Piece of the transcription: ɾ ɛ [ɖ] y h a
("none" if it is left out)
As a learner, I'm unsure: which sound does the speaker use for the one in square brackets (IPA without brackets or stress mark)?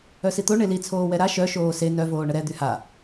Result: d̪